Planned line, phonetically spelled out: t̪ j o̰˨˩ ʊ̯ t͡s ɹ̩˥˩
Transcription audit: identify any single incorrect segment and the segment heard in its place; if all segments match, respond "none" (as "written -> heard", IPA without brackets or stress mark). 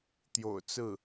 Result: none